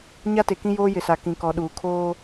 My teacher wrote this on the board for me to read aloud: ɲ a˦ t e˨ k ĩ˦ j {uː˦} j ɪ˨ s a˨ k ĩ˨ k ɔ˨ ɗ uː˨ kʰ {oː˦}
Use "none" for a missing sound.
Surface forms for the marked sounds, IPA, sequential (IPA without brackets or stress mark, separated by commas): oː˦, oː˦